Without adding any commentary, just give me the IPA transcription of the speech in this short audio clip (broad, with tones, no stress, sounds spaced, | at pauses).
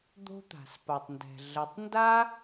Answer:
d̪ o̤˥ t̪ a̤˩ s p a˩ tˤ n d ɛ̤˩ ɮ ə˩˧ tˤ n d a˥